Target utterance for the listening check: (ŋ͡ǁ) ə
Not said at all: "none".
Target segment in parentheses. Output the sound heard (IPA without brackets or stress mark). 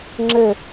ŋ͡ǁ